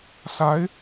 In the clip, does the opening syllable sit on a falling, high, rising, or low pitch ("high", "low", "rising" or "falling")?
rising